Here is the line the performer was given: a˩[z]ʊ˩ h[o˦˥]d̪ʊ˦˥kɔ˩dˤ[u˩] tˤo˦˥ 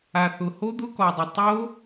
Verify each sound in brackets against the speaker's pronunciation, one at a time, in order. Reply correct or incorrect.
incorrect: θ, correct, incorrect: ʊ˩

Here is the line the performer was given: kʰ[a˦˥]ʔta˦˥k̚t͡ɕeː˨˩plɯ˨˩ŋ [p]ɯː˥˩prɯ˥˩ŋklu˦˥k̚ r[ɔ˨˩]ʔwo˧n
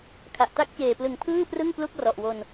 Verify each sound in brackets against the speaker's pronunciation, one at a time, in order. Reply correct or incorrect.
incorrect: a˨˩, incorrect: pʰ, correct

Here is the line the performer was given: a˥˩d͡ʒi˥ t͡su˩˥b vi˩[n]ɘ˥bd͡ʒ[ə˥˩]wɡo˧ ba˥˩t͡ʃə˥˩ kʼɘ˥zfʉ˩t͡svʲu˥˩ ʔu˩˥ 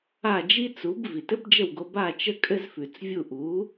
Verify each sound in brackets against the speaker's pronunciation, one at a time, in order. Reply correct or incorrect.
incorrect: t, correct

